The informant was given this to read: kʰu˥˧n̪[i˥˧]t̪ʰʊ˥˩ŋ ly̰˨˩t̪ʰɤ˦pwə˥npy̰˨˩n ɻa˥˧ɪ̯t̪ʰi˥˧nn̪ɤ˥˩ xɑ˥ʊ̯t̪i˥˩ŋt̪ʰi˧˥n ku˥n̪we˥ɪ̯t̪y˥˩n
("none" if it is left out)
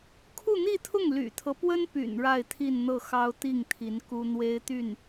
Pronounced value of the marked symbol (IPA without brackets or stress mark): i˥˧